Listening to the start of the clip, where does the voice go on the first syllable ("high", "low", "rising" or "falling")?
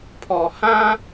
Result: low